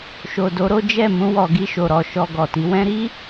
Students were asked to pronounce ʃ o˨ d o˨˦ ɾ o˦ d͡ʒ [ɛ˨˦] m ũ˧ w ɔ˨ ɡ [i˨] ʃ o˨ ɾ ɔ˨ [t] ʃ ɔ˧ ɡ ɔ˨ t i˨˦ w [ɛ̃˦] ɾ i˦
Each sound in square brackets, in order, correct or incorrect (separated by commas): incorrect, incorrect, incorrect, correct